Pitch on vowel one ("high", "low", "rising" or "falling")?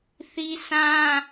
high